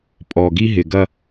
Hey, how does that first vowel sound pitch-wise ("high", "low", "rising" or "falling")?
low